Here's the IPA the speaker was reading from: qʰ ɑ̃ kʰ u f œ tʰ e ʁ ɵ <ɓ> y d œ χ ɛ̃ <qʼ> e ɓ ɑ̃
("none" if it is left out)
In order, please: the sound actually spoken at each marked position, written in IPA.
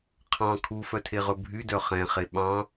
bʱ, χ

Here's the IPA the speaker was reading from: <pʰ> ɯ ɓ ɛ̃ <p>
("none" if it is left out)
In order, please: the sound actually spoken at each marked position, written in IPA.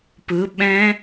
p, none

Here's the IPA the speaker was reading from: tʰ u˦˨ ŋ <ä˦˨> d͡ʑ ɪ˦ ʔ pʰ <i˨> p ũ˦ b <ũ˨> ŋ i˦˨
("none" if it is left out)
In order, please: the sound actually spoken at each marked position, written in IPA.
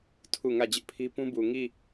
ä˦˨, i˦, u˨

